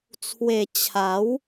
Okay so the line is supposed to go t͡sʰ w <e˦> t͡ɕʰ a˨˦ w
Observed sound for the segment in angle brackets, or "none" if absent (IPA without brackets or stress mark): e˨˩